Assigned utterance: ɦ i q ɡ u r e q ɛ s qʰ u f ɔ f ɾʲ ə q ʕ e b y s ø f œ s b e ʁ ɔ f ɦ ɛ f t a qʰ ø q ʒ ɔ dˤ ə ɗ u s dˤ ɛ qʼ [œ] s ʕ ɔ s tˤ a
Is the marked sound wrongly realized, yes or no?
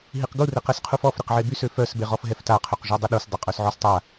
no